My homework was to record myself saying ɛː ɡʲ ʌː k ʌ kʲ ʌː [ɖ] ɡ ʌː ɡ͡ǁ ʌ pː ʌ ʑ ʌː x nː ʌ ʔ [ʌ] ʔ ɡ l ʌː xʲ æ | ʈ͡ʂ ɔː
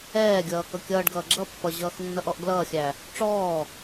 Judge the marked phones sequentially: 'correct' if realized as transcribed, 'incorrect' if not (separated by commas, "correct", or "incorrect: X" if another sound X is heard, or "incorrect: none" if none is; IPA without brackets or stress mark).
correct, incorrect: ɔ